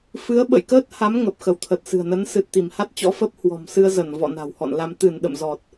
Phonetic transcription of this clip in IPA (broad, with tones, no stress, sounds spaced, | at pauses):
f ɨ˨˦ ə̯ ɓ ə̰˧˨ j k əː˦˥ t̚ h a˨˦ m ŋ ə˨˩ p̚ x ə˧˩ w t̪ʰ ə˨˩ t̚ s ɨ̤˨˩ ə̯ n ə˨˦ n s ɨ˨˩ t̚ t̪ i˧˩ m h a˦˥ t̚ t͡ɕ ɔ̰˧˥ f ə˦˥ p̚ h w ɔ̤˨˩ m s ɨ˧ ə̯ z ə˧˩ n v ɔ̰˧˨ n a̤˨˩ w h ɔ̰˧˨ n l a˧ m t̪ ɨ˧˩ n ɗ ə̰˧˨ m z ɔ˨˩ t̚